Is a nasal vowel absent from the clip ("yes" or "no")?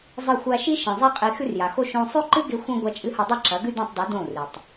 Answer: no